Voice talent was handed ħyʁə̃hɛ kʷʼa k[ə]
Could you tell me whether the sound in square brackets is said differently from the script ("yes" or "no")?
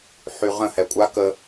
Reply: no